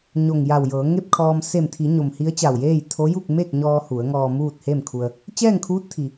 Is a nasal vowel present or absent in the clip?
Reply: absent